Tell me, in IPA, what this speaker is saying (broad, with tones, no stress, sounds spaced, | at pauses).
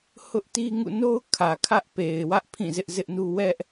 h ʊ˦ ʔ t i˦ ŋ ṵ˦˨ n o˦ ʊ̯ kʰ ä˨ kʰ ä˦ ʔ p e˨ ɪ̯ w ä˦ ʔ pʰ ĩ˦˨ z ɪ˦ ʔ z ɪ˦ ʔ n u˦ w ɛ˦ ʔ